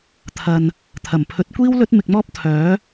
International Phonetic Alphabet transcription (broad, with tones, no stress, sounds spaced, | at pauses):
t̪ʰ ɐ˨ n | t̪ʰ ɐ˨˩ m pʰ ɵ˨˥ t̚ kʷ iː˥ w l ɵ˥ t̚ m ɪ˧ k̚ m ɔː˥ p̚ t̪ʰ œː˨˥